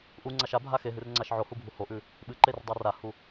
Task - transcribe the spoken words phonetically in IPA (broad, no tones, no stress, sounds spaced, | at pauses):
ʔ u ŋ͡ǀ a ʃ a bʱ a x e ɦ ɨ r ŋ͡ǀ a ʃ ʕ o h u bʱ u h o ʔ ʉ | ɓ ɨ ǃ e r dˤ a r a h u